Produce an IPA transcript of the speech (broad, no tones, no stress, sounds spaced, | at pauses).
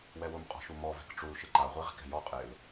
w ɛ w ʊ m qʼ ɔ̤ ʃ u m ɔ v ɛ̤ k ʈ͡ʂ u l ʃ ɪ ǃ a ʁʷ e ʁ i̤ k ɛ̤ j ɔ qʼ ɪ l